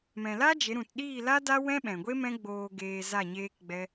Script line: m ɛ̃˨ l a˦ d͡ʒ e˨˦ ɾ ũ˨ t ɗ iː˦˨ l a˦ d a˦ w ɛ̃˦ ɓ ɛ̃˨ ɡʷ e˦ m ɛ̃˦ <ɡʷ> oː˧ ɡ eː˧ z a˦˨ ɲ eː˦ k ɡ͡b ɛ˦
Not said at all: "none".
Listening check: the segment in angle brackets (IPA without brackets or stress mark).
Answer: ɡ͡b